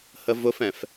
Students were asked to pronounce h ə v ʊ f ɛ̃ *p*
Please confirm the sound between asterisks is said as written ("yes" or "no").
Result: no